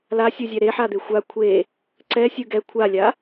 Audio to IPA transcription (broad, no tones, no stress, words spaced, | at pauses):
lasʲuzʲɛ ɾeħad̪e xʷa kʷʰe | ǀɛsʲɯ ɡɛ kʷʰalʲa